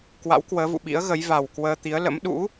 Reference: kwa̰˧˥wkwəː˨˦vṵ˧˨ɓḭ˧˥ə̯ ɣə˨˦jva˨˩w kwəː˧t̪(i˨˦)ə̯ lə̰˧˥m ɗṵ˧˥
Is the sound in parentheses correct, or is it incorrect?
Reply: correct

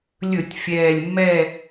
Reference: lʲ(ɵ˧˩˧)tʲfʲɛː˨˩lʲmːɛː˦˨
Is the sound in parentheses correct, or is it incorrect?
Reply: correct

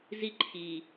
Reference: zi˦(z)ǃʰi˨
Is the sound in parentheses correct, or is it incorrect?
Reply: incorrect: none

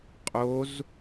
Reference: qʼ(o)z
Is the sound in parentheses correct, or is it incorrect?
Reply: correct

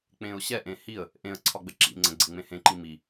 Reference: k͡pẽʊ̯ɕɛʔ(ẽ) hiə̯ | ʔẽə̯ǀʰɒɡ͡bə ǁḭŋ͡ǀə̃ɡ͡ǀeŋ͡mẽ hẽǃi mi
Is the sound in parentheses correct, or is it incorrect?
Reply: correct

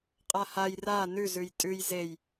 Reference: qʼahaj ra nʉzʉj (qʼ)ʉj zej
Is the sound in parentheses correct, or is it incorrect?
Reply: incorrect: tʼ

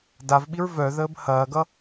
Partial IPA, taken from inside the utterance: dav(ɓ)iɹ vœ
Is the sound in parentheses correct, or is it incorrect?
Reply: correct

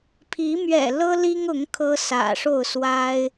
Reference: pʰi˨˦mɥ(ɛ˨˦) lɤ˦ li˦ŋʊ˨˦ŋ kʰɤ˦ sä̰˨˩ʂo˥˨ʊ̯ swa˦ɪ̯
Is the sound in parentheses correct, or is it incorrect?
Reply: incorrect: ɛ̰˨˩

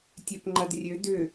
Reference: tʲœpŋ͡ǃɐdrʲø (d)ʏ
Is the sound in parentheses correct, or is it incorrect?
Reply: correct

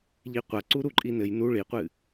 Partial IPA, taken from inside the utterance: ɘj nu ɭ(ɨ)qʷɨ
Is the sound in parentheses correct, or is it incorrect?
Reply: incorrect: i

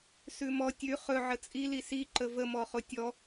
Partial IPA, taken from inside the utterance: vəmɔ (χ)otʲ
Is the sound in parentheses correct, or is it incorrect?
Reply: correct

